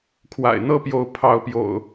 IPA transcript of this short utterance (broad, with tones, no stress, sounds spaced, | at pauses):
kʰ w a̰˨˩ ɪ̯ n̪ ɤ˥˨ p j o˨˦ ʊ̯ pʰ ɑ˨˦ ʊ̯ p j o̰˨˩ ʊ̯